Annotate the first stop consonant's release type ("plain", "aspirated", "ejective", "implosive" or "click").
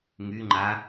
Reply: click